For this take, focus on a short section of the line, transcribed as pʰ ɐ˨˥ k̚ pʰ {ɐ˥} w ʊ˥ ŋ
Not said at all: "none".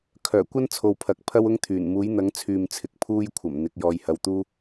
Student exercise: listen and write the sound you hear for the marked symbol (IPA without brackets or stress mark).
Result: ɐ˥